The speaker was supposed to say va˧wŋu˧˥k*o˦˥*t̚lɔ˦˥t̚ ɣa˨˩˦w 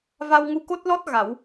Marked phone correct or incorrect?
correct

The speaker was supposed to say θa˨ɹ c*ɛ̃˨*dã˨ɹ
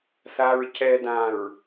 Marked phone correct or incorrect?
incorrect: ɛ˨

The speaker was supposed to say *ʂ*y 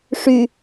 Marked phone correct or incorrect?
correct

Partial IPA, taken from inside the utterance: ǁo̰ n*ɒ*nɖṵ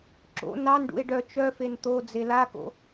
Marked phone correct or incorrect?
incorrect: ɑ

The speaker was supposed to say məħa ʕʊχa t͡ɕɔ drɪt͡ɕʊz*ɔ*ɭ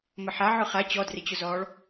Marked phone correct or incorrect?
incorrect: ɔː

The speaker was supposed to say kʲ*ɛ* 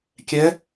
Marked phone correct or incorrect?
correct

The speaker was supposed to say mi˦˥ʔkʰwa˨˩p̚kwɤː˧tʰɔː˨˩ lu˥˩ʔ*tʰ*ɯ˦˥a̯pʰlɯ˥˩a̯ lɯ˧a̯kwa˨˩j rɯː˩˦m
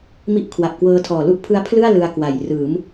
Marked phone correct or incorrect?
incorrect: pʰ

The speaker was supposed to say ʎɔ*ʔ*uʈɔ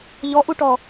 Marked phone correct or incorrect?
correct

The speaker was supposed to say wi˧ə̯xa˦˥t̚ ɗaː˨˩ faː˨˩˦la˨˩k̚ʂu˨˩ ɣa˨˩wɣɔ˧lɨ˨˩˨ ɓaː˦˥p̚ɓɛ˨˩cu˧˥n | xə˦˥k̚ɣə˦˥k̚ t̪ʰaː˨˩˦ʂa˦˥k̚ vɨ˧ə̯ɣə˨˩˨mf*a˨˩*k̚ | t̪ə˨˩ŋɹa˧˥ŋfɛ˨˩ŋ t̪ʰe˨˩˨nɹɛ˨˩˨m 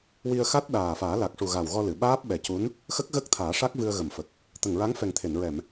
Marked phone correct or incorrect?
incorrect: ə˨˩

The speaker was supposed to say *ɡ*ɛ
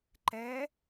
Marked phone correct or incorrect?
incorrect: ǃ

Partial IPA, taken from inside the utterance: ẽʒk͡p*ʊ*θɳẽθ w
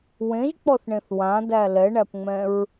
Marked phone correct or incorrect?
incorrect: ɔ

